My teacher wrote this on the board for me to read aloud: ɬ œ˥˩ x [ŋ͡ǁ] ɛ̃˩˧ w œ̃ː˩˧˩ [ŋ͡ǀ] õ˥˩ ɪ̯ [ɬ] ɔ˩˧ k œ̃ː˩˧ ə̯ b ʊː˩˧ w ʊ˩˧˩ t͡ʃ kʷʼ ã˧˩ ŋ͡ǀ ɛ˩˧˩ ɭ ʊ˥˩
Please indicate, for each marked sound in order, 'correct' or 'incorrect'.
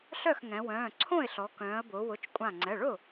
incorrect: ŋ, incorrect: ǀʰ, correct

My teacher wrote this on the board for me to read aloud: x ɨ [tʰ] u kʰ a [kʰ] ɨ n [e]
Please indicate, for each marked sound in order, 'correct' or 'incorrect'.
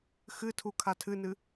correct, incorrect: tʰ, incorrect: ɨ

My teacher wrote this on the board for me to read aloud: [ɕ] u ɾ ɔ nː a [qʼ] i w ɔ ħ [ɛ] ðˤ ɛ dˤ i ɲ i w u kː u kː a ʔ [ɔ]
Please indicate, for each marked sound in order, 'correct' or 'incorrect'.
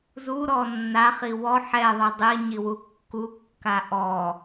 incorrect: z, incorrect: χ, correct, correct

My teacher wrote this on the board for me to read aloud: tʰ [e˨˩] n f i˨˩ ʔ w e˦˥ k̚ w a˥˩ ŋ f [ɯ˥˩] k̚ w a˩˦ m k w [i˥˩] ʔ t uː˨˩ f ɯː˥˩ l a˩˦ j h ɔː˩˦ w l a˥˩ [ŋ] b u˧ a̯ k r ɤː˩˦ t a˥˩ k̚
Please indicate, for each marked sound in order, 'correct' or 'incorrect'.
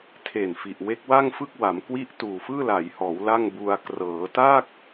correct, correct, correct, correct

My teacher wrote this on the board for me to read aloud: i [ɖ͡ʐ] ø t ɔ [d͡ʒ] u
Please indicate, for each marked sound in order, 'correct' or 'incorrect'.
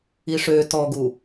incorrect: ʂ, incorrect: ɡ

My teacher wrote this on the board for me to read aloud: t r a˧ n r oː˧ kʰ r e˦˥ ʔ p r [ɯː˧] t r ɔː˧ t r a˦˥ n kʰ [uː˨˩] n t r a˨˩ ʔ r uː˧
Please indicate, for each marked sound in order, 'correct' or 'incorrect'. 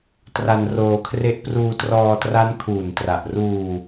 incorrect: uː˧, correct

